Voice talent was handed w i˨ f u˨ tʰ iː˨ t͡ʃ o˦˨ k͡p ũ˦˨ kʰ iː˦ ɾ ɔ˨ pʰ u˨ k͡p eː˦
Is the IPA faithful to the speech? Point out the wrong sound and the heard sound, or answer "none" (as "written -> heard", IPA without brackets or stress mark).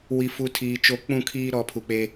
none